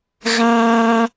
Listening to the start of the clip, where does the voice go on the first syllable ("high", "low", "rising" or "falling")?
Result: high